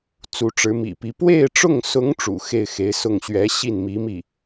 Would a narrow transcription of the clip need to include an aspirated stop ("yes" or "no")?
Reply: no